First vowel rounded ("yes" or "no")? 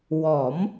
yes